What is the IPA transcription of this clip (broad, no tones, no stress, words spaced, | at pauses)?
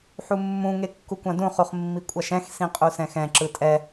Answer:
ħumːũ ŋekːukʷãdũ χuχmːikʷʼaʃɛ̃x sĩqʼusɛ̃xɛ̃ ǁɯtʼɛ